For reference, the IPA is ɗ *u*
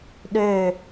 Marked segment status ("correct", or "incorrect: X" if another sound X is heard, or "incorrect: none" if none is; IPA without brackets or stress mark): incorrect: ø